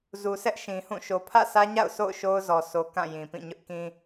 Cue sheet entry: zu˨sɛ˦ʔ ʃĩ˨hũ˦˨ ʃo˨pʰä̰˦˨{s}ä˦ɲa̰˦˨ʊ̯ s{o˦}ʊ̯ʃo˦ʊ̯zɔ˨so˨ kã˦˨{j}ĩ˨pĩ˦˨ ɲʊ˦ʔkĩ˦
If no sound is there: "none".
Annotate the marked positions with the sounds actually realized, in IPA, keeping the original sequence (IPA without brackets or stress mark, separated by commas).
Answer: s, o̰˦˨, j